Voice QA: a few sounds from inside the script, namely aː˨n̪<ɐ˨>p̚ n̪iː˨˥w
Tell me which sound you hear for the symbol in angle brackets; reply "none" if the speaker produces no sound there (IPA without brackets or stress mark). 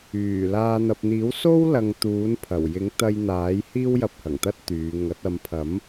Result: ɐ˨